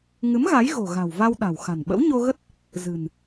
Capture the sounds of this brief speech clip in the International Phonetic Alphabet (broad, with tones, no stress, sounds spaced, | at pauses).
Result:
ŋ ɨ˨˦ m ɣ a˨˦ j ɣ o̤˨˩ ɣ a̤˨˩ w v a˧ w ɗ a̤˨˩ w x a̤˨˩ n ɓ ə̰˧˥ w ɲ o˧ ɣ ə˦˥ t̚ | z ɨ̤˨˩ n